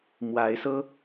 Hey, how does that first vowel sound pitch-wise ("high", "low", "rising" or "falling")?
rising